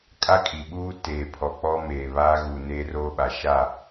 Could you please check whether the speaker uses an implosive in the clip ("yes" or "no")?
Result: yes